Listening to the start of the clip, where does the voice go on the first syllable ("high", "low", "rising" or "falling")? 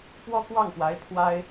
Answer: high